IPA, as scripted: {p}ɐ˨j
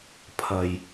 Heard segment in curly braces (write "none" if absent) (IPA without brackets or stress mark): pʰ